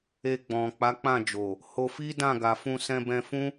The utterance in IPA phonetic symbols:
e˧ ɡ͡b ɔ̃˨ k͡p a˨˦ k͡p ã˦˨ d͡ʒ o˨ | h o˧ f i˦ d ã˦˨ ɡ a˨ f ũ˧ s ɛ̃˧ b ɛ̃˧ f ũ˦

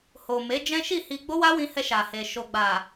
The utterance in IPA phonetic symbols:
h o˨ m e˨˦ d͡ʒ ɛ̃˦ ʃ i˦˨ h i˧ ɡ͡b o˦ w a˦ w ĩ˧ h ɛ˧ ʃ a˨ h e˨ ʃ o˨ ɡ͡b a˨

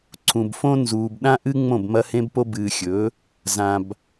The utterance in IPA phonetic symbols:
ǀʰ ũ˨ b f õ˦ n z uː˨ b ɗ ã˦ ʔ ɨ˦ ŋ͡m õ˦˨ b m ɐ˦ h ẽ˦ b p o˦ b ɨː˨ xʲ ɵ˨˦ | z ã˨ b

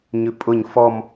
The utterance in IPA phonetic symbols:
ɲ ʉ pʼ ʊ ɲ f ɔ m

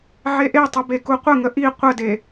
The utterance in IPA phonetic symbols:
ʕ e ʔ e tˤ u b e k u qʷ ə ŋ ə ʔ i qʷ ə d e

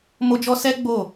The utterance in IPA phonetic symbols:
m o˧ d͡ʒ ɔ˧ s ɛ˦ ɡ͡b o˦˨

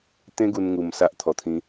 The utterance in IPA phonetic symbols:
t̪ ẽ˦ ɡ u˧ n ŋ u˨˩ m s a˦ ʔ t̪ʰ ɔ˨˩ t̪ʰ ĩ˨˦

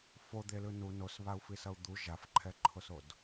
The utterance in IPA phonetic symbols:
f o d̪ e l ɯ n u n o s β a u̯ f i s ʌ u̯ d̪ u ʒ a f ǃʰ ɛ ǃʰ o s o d

